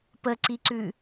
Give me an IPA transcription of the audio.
pəǀiǀʉ

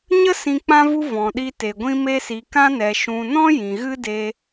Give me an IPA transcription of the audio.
ɲə˦ sĩ˧k͡pã˦vu˦ vɔ̃˨ɗi˧te˨ ɡʷĩ˧me˧si˨ kã˧nɛ˨ʃũ˨nɔ̃˦ jĩ˨ɣɨ˦de˧

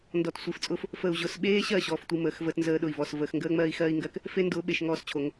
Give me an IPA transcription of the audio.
ndɔ˨tsʷi˨ft͡sʼʊː˦f | fə˨u̯ʑʊ˨sɓeː˦ɕɜ˦˨ ɕɔː˦˨ftʷi˦məː˨˦xvəː˦t nzəː˦ɗʊ˨i̯ vɔ˨s vəː˨xŋɡəː˦ ŋ͡mɜː˦i̯xɜː˦i̯ŋɡɜ˦k | fe˦ndʊː˨˦ ɓe˨ʃŋɔː˦st͡ɕʰo˨˦ŋ

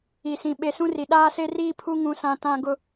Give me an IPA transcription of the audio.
i˨sĩ˨ ɓe˨sũ˦ri˨ ɗaː˦se˦riː˦pʰu˦ ŋũ˨sã˨ tã˦ ɡʊ˦

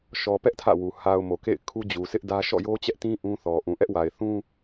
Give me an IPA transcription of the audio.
ʃɔ˨ pɛ˦ʔ tʰä̰˦˨wu˨ ha˨ʊ̯ mo˨kḛ˦˨ɪ̯ kʰu˦d͡ʑu˨sʰɪ˦ʔdä˦ ʃɔ̰˦˨jo˦t͡ɕɛ˦ʔtĩ˦ ʔũ˦θɔ˨ ʔũ˨ʔɛ˦ʔwa˨ɪ̯ θũ˦

